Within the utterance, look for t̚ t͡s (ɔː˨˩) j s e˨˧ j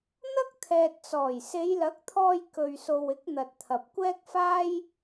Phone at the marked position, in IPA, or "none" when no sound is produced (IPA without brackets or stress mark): ɔː˨˩